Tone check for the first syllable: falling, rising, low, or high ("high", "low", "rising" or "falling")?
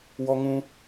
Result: high